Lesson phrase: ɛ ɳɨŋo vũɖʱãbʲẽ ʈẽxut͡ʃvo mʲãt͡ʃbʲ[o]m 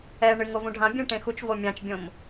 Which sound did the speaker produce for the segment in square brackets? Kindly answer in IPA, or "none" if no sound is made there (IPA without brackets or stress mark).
õ